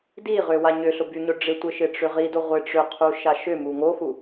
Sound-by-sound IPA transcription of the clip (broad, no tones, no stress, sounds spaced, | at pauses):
d i ʁ ø w a ɲ ʏ ɬ ʊ b y ɲ ʊ ɖ͡ʐ ɪ tʷ ɪ ʃ ɪ ʈ͡ʂ ʏ ʁ i d o ʁʷ ɪ ʈ͡ʂ ʏ qʰ u ʃ a ʃ ʏ m u ŋ o x u